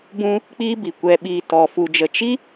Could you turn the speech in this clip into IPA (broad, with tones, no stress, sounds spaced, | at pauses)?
b ũ˦ | k͡p iː˦ b i˨ kʷ ɛ˧ ɓ iː˧ t ɔ˧ f u˧ d͡ʒ ə˧ t͡ʃ i˦